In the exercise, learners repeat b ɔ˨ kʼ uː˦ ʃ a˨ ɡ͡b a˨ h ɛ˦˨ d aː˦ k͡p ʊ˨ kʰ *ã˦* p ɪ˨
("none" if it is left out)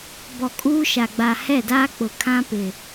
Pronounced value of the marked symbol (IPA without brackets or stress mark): ã˦